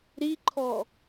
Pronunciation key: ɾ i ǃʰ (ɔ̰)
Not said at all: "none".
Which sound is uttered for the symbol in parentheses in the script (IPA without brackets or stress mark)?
ɔ